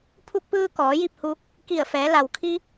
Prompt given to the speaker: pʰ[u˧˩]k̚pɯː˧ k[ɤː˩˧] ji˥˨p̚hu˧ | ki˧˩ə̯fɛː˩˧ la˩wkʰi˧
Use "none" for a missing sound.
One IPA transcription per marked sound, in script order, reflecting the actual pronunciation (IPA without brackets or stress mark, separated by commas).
u˧, ɔː˩˧